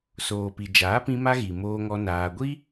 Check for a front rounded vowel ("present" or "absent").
absent